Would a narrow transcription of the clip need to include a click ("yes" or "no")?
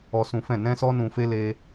no